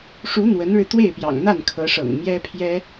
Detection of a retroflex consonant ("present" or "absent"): present